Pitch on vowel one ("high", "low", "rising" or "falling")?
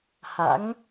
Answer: rising